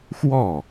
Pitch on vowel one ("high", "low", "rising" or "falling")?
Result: falling